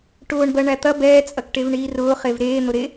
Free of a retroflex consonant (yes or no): no